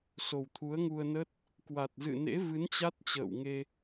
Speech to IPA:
so˨˩wt̪ʰu˨˦ə̯ŋu˧ə̯nə˦˥t̚ | kwa˨˩t̚zɨ̰˧˨nḛ˧˥vɨ˨˦n t͡ɕa˦˥t̚t͡ɕə̰ː˧˨wŋe˧

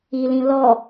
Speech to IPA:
ilĩ lɔ

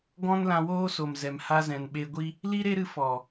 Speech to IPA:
ɡɔ̃˦n lã˧woː˦so˨mzɛ˨m ha˧zɛ̃˨nɓe˧ɡʷi˦ | li˦ɾe˦ɾɨ˧ fɔ˨

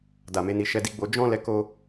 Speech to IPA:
da˨me˨˦ni˧ ʃɛ˧di˧ɡ͡bo˧ d͡ʒɔ̃˦ lɛ˦ko˦

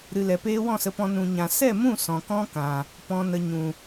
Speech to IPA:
ɾɨ˨lɛ˨peː˧ wɔ̃˦˨sə˧pɔ̃˧ nũ˧ɲã˧ sɛ˦˨mũ˦˨ sɔ̃˨kɔ̃˦kã˨ | pɔ̃˨nə˨ ɲũ˨

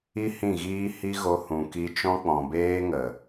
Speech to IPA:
i˦ hĩ˦˨ɣiː˦ hi˦ɣo˧ hũ˨ki˧t͡ʃɔ̃˦k͡pɔ̃˨ beː˦ŋə˨

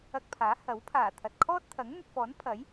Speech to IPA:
ɐ˧k̚pʰaː˨˥ hɐ˨˥wpʰaː˨˩ t̪ʰɐ˨t̚kʰɔː˥t̚t̪ʰɐ˨˥ŋ n̪ɵ˨t̚fɔː˨˥npʰɐ˨˥j

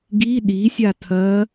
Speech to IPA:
ɡi ɗisʲa tʰɐ

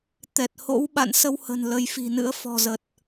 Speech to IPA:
t̪ɛ˨˩t̚ho̰˧˥w ɓa̰˧˨nsə˧whə̤˨˩n lə˨˦jfi̤˨˩nɨ̰˧˥ə̯ fɔ̤˨˩zə˨˩t̚

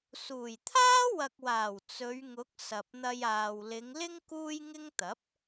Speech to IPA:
suː˨˩jt̪ʰaː˥wɐ˨k̚waː˨˩w t͡sɵ˨˧ɥŋʊ˨˥k̚ sɐ˨p̚n̪ɐ˧jaː˨w lɪ˨˧ŋlɪ˥ŋ kuː˥jŋɪ˥ŋt̪ɐ˨˥p̚

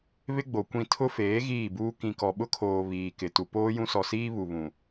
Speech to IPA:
βɪ˦ɡ͡bo˨kʷĩ˦˨ tʰʊ˦feː˨˦ ɣiː˦˨buː˦ kĩ˨kɔ˨ɓʊ˦kʰoː˨ βiː˨kɪ˨ tu˨ poː˦jũ˦sɔ˨siː˦ βu˨βũ˨

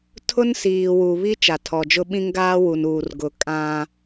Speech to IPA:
tʰʊ˦nsiː˨wu˨ βi˦ t͡ʃa˨tʰɔ˨d͡ʒʊ˦ɓĩ˦ŋ ɡaː˦wu˨nuː˨r ɡʊ˦ kʼã˦

